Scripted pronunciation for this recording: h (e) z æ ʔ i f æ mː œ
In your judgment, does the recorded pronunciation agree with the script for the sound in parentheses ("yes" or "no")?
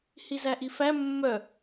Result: no